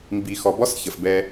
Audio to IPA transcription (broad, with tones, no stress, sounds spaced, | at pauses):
m b i˨ x ɔ˨ b ɔ˦ s ç ə˨ f b ɛ˧